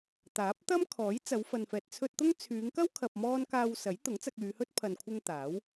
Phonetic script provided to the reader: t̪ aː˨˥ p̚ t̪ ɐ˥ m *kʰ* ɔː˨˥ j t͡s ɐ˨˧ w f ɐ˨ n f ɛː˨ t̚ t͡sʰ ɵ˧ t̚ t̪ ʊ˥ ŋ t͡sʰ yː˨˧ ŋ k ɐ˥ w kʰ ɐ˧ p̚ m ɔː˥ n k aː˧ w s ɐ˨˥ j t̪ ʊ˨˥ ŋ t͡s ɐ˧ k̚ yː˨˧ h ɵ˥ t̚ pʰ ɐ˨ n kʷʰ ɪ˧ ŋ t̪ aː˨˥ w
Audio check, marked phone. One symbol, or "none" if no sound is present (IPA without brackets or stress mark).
kʰ